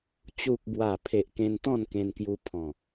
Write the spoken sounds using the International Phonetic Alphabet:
t͡ɕ u˨ k̚ b w a˨˩ pʰ e˨ ʔ k ẽ˧ n t̪ ɔ̃˥˧ n k ẽ˧ n k j u˧ pʰ ɔ̃˨˩

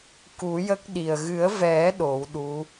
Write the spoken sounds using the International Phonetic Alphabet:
k u˨˩˦ j ə˦˥ k̚ ɗ i˨˩ ə̯ ɣ ɨ˨˩˦ ə̯ v ɛ˨˩˦ ɗ o˨˩˦ w ɗ u˧˥

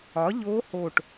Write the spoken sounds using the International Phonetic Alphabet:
ɒ˨˥ ʎ oː˦˥ h o˦˨ ʈ

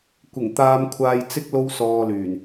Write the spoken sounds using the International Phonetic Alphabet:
kʷ ɪ˨˩ ŋ t̪ aː˧ m kʷʰ aː˧ j t͡s ɪ˥ k̚ l o˥ w s ɔː˧ l yː˨˩ n

